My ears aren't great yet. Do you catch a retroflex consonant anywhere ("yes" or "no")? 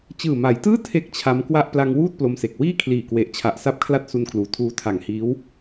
no